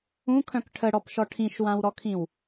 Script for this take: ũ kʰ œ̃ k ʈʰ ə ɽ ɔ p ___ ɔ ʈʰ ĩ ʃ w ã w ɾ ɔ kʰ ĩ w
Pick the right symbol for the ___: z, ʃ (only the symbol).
ʃ